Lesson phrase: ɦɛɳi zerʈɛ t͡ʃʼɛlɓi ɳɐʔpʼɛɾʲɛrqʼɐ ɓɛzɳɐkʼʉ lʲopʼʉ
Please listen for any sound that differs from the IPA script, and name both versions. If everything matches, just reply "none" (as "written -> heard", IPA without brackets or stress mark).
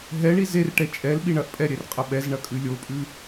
none